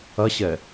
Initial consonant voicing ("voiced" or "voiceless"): voiceless